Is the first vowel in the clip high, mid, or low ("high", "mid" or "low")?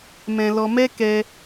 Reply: mid